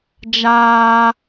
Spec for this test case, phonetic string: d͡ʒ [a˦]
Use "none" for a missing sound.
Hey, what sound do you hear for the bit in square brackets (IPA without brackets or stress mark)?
aː˦